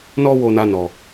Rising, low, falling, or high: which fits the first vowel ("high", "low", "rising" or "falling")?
high